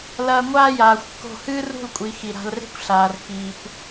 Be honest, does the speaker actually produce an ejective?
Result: yes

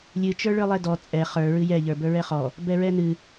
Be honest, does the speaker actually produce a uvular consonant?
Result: yes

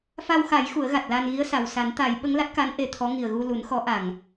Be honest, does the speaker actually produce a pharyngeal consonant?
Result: no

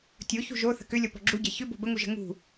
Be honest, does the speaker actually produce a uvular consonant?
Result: no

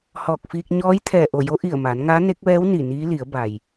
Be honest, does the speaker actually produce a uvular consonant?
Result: no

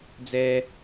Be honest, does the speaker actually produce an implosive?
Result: no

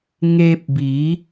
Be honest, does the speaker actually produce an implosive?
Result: no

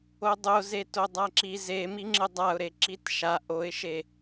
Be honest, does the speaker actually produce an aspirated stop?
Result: no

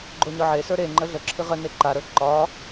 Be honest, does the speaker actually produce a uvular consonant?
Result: yes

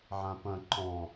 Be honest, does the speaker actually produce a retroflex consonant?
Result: no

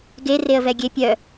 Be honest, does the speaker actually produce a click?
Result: no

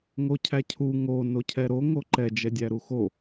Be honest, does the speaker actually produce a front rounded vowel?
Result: no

